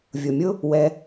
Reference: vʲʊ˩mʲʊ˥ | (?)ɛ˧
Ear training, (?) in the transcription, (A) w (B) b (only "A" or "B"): A